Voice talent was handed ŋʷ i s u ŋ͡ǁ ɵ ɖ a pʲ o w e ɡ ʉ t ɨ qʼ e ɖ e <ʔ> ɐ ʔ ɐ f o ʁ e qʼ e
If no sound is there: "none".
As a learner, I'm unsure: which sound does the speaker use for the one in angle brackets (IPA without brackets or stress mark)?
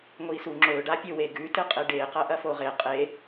q